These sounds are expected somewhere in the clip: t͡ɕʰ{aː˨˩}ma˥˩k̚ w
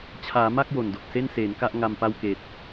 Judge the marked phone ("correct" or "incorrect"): incorrect